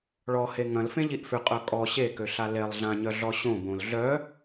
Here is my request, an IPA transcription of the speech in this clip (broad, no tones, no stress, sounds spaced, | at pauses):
ɭ ɔ h e ŋ ɐ̃ l f ẽ ʎ i ʔ f ʏ qʼ œ kʼ ɔ ɕ e k ø ɬ a l e lˠ ɮ ã ɲ œ ɮ ɔ ɕ õ b õ l ɮ œ